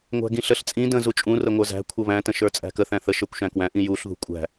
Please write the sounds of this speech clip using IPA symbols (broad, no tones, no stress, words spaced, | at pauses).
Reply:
ŋʷæ̤ɡĩɬəɬ t͡sʼĩ də̃ zut͡ʃʼũ rəŋʷə˞zæ̤ kʷʰʌβæ̃ tə̃ʃə˞t͡sʼæ̤kə θæ̃θə ʃə˞kʷʃæ̃kwæ̃ ʔĩjuɬ ðṳkʷʼæ̤